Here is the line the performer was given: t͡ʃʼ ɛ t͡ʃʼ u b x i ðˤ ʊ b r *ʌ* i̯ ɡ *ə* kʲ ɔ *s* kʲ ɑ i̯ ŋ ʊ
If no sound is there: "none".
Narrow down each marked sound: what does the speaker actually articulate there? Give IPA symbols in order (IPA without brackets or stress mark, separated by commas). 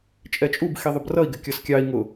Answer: ʌ, ɪ, s